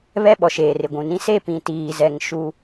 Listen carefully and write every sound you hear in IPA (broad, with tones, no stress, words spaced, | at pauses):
βɛ˦ɓɔ˨ʃeː˨rɪ˨ ɡʷũ˨nĩ˦ se˦˨pĩ˨tiː˨zɛ˨ŋ ʃu˦